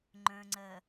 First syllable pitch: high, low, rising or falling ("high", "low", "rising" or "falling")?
low